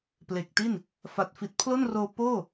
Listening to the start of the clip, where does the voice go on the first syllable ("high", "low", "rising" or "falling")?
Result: low